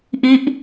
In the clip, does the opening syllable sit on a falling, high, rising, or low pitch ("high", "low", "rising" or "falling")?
falling